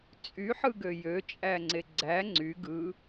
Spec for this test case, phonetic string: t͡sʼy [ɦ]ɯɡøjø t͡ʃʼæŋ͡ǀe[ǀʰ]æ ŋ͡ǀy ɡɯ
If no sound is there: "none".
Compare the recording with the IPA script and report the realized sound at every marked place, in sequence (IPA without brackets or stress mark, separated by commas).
ħ, ɡ͡ǀ